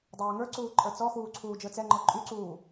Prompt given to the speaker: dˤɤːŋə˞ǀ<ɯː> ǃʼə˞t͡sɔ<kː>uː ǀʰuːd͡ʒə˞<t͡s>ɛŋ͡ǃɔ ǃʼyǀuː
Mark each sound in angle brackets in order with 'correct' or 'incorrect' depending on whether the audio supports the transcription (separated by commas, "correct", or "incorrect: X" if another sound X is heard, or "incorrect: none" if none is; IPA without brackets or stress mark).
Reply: incorrect: uː, incorrect: x, correct